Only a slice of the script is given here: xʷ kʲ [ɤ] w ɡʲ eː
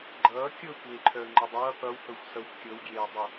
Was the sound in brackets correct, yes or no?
yes